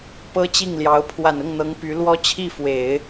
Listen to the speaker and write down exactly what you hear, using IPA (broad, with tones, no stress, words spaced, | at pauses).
pɤ˥t͡ɕi˥˩ŋljɑ˧˥ʊ̯ pʰwa˨˩nʊ˥˩ŋn̪ɤ˧˥ŋ py˧˥lwɔ˥ t͡ɕʰi˥˩fwe˨˩˦ɪ̯